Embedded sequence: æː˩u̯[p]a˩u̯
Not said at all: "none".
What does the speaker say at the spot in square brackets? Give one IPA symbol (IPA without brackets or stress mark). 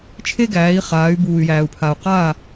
pʰ